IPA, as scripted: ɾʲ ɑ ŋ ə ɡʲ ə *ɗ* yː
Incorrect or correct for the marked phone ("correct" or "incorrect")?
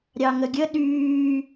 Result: correct